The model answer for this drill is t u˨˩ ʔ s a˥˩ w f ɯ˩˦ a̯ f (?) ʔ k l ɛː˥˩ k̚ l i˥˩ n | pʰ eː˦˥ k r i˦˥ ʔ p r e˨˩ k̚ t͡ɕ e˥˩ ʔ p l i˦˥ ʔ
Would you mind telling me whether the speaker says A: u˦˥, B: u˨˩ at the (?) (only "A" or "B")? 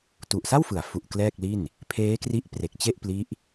B